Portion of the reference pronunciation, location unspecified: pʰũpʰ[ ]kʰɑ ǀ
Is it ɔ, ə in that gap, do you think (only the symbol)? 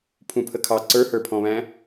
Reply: ə